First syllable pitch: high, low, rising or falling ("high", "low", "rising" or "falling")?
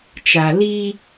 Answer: low